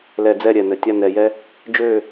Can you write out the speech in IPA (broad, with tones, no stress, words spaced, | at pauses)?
lɛ˧˩˧d͡zɛ˥˨ɾʲɛ˩ nɘ˩tʲa˥˨nɛ˧˩˧jɛ˦˥ | d͡ʒø˥˨